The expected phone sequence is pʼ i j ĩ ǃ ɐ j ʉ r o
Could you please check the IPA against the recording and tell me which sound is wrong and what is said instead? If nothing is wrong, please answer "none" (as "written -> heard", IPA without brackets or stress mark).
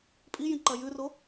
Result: none